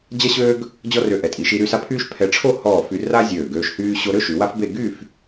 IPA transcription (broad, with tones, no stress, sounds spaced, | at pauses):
d͡ʑ ɐ˥ ɕ øː˥ ɡ | d͡ʑ ɔ˥ r ø˧ ʔ ɛ˩˧ tʼ i˩˧ ʃ i˧ ɾ y˥˧ s a˥ pʰ yː˥ ʃ pʰ ɛ˧ ʈ͡ʂʰ o˥˧ h ɔː˧˩ f y˧ r a˥ zʲ øː˧˩ ɡ øː˧ ʃ h yː˧ ɕ o˧ ɾ ø˥ ʃ y˩˧ w a˥ f b e˥˧ ɡ yː˥˧ f